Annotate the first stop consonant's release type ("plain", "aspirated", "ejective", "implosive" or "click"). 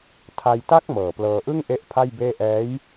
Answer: aspirated